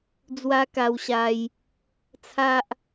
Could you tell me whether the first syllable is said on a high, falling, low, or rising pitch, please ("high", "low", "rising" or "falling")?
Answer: high